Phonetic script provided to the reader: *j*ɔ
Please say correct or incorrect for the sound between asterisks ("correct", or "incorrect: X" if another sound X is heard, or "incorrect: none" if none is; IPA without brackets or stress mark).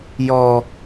correct